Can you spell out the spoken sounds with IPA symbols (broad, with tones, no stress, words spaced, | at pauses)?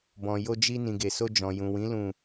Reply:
bɔ̃˨jo˧d͡ʒi˧ nĩ˨ɡe˨so˧ d͡ʒɔ̃˨jũ˨wĩ˨˦ lũ˦˨